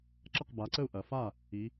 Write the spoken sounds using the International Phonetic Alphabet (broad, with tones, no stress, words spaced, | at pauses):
ǁɐ˥˩qba˩˧ǀə˥˩u̯ ʔɐ˩fa˥˩ | i˩˧